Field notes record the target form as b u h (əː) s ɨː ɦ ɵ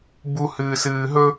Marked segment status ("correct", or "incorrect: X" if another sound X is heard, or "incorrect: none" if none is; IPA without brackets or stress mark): incorrect: ɨː